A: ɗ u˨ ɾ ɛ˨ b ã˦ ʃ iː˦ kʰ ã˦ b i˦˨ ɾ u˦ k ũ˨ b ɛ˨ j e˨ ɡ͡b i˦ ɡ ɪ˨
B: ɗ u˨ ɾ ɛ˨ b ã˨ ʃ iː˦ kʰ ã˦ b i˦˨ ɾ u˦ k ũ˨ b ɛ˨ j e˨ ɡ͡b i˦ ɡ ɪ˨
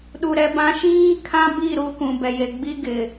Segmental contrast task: A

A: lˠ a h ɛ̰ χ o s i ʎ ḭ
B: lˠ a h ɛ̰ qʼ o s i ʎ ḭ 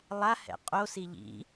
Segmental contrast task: B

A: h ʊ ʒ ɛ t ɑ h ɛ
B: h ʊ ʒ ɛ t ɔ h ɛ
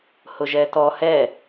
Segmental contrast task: B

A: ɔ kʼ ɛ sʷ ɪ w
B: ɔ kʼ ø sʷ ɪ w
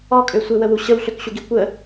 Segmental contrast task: B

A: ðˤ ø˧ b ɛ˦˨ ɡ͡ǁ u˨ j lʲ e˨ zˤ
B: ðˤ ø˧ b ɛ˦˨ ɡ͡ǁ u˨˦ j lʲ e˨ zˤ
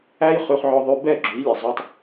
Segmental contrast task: B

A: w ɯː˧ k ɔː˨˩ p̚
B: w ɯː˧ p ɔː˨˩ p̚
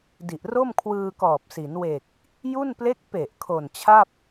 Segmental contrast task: A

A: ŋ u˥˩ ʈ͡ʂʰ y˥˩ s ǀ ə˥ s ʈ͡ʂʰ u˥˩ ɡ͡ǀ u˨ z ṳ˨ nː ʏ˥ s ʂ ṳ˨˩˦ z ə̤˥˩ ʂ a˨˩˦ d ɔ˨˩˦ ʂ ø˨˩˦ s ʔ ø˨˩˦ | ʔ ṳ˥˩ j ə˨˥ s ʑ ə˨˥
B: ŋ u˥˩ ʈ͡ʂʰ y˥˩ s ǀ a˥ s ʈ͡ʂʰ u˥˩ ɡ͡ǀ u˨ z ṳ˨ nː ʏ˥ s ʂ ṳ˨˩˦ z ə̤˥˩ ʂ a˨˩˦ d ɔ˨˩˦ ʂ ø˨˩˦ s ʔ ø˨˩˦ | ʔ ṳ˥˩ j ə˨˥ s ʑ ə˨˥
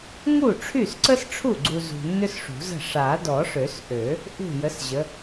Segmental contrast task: A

